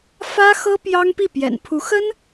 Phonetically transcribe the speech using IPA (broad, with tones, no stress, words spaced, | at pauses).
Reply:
fä˥xɤ˥ pjɑ˥ŋpi˥˩ pjɛ̰˨˩npʰu˧˥xə˥n